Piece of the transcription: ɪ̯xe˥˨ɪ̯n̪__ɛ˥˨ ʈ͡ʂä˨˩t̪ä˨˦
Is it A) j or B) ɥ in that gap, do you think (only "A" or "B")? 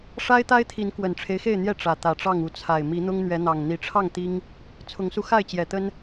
A